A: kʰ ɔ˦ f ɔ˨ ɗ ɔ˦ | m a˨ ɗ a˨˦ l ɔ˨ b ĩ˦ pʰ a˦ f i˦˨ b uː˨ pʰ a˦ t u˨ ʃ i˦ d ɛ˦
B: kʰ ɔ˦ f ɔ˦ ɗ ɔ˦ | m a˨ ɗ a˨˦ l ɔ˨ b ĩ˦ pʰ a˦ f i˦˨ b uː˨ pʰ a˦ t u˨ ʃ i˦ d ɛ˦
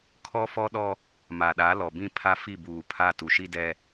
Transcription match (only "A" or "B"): B